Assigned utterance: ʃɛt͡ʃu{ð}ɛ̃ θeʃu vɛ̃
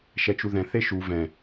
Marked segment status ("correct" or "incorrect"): correct